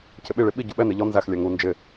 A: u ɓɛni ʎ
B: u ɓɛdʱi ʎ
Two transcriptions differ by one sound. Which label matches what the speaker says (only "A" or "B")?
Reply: A